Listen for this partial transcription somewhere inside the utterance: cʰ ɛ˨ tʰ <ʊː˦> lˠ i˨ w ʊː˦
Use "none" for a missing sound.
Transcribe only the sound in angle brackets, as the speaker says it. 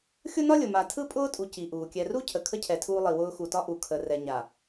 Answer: uː˦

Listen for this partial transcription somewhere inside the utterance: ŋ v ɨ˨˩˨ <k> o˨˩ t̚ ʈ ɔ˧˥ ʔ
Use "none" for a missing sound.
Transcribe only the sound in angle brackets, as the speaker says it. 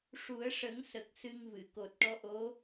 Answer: k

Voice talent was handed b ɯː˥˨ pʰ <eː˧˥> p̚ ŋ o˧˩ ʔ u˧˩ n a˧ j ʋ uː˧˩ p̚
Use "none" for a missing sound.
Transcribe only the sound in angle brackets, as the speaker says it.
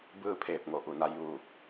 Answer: eː˧˩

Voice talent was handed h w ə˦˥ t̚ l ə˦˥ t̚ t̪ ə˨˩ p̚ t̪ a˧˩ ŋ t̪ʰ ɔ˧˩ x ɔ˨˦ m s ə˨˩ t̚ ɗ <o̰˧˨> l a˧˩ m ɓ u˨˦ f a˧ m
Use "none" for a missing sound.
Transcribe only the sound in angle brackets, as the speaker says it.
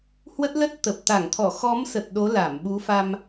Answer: o˨˦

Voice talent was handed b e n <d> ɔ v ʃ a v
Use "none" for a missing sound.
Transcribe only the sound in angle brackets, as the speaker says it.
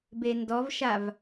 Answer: d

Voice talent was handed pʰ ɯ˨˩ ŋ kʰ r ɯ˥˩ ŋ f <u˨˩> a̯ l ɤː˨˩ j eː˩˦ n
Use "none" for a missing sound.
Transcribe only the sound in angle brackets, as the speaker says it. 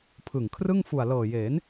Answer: u˨˩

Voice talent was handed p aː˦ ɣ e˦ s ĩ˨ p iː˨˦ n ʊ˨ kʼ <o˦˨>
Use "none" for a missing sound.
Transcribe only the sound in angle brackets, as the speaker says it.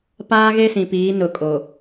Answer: o˨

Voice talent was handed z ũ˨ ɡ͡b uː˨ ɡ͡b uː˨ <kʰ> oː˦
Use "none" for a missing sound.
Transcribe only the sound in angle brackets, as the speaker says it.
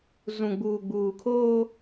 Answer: kʰ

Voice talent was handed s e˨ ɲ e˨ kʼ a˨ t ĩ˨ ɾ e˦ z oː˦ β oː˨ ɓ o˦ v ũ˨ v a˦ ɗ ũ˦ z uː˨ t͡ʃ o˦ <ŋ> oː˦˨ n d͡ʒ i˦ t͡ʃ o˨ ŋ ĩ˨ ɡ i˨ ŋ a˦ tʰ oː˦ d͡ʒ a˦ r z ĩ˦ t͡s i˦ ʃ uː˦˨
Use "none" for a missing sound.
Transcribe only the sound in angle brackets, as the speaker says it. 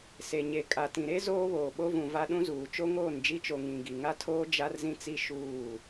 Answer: ŋ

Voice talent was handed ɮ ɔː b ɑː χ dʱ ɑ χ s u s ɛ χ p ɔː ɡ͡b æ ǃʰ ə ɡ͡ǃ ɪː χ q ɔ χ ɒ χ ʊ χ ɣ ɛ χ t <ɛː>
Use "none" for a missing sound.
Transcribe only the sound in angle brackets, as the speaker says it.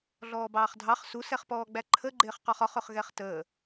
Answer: əː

